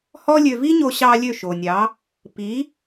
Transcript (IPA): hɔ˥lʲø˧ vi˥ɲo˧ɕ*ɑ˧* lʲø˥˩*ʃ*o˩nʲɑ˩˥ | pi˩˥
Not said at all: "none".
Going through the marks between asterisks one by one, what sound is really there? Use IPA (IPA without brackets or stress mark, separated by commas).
ɑ˧, ʃ